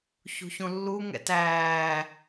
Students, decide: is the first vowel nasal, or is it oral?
oral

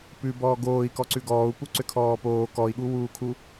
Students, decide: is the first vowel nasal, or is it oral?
oral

